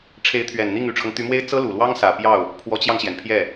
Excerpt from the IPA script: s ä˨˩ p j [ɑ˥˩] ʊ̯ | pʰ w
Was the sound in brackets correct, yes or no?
yes